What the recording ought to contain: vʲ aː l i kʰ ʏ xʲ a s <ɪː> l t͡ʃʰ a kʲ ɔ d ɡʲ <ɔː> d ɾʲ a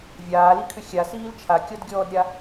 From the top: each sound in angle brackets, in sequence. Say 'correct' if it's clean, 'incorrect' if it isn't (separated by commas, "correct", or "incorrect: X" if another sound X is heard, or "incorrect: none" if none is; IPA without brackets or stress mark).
incorrect: iː, correct